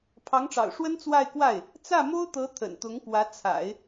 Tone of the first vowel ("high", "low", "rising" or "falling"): rising